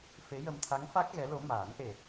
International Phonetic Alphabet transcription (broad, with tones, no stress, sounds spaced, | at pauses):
f e˧˥ j ə˧ m t̪ʰ a˧˥ ŋ f a˦˥ k̚ ɣ ɛ˧˥ l o˧˥ m aː˨˩˦ n ʔ e˨˩